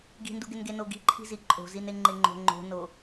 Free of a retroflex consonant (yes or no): yes